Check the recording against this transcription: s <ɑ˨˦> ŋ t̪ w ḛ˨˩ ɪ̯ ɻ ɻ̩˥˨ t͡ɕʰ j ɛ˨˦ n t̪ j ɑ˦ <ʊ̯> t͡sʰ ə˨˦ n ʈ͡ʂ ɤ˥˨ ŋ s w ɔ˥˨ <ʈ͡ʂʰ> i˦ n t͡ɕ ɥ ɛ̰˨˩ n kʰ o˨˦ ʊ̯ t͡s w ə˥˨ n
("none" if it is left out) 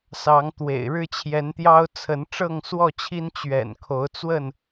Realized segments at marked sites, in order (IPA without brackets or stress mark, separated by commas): ɑ˨˦, ʊ̯, t͡ɕʰ